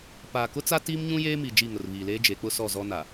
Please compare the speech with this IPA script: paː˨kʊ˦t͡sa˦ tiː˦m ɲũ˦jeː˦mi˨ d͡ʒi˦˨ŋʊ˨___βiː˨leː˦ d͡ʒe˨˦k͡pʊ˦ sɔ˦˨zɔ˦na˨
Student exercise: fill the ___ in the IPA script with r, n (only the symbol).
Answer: r